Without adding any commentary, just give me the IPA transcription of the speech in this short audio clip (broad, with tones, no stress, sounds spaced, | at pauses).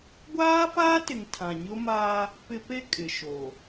ɡʷ aː˦ f aː˦ t ɪ˨ ŋ tʰ ã˨ ɲ ʊ˦ m aː˦ | p ɪ˦ p e˦ kʼ ɪ˨ ʃ oː˨